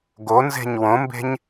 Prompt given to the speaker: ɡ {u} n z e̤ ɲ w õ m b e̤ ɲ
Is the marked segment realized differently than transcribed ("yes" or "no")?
yes